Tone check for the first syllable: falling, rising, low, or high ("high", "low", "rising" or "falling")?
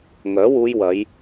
rising